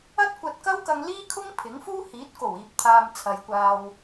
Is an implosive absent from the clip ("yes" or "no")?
yes